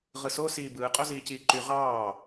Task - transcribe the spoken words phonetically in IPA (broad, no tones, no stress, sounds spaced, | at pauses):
ʁ ɯ s o s iː b ɯː qʼ o z iː c iː ǃ y ʁ ɑː